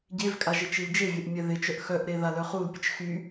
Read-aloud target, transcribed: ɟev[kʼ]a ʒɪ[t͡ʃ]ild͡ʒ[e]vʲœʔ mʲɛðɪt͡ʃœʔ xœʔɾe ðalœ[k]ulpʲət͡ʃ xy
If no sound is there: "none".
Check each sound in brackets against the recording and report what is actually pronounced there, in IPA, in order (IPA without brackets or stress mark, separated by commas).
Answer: kʼ, t͡ʃ, e, χ